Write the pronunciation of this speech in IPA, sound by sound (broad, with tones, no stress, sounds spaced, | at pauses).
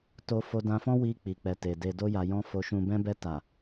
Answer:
t o˦ f o˧ d ã˧ f ɔ̃˦ w i˧ k͡p i˨ k͡p ɛ˨ t e˨ d e˨ d o˧ j a˨ j ɔ̃˧ f o˨ ʃ ũ˨ b ɛ̃˧ b ɛ˧ t a˨